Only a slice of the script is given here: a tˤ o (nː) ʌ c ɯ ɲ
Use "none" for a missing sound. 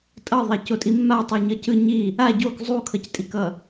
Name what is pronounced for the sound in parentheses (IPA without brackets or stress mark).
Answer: ɲ